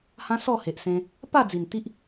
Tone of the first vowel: high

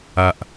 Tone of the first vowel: low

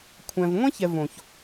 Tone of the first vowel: low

